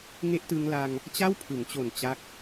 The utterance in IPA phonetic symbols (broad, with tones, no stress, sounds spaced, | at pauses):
ŋ e˦˥ ʔ t ɯ˧ ŋ l a˧ ŋ | t͡ɕ a˥˩ w pʰ ɯ˩˦ ŋ t͡ɕ o˨˩ n t͡ɕ a˦˥ k̚